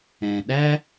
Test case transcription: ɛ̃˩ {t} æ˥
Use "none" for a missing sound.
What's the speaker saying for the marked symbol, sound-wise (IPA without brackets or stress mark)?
ɗ